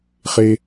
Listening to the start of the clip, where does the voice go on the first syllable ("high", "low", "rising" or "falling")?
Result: high